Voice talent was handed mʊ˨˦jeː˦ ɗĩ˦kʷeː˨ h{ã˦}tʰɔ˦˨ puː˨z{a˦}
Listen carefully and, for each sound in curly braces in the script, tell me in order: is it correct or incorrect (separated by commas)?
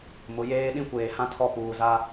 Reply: correct, correct